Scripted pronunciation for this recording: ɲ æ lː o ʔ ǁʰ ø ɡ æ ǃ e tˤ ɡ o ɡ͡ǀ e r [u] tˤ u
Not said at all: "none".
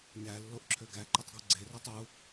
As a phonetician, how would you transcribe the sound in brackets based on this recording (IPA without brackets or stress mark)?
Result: ø